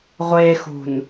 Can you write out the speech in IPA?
ʁʷexṳn

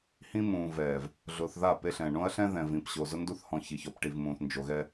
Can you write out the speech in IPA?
hĩ˦mũː˨vɛː˨v | ɮʊː˨θða˦˨ pe˦ɬɛ̃˨ ɳõ˦ɐ̯ɬɛ̃˦ ðɛ̃˨vĩ˨pɕo˨ zʊ˦ndu˦θhɔ̃˨ çi˨çɔ˨pʈi˨vmũː˨θ nd͡ʒo˨ɣɛ˦

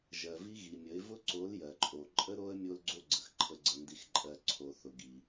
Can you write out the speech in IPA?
ʒɜ˨vi˦ ɣi˨mʲə˨˦ɪ̯ vʊ˦ǀo˨˦l jɜ˨ǃʼo˨ ǃʼə˦ɾo˦ə̯ mʲo˦lɡ͡ǀo˦ ɡ͡ǀə˨x ǃʰə˨ɡ͡ǀə˨ndi˨xǃʼɜ˨ ǀʰo˨θʊ˨ɡi˨

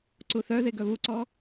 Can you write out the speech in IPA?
ǀuθœðe ɡœβuǀɔ

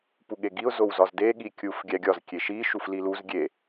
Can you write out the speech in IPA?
puɠeɡiʊ̯ zowzɒzde ɠikʲuf ɡʲæɡʲɒz kʲeʃi ʃufliluz ɡʲe

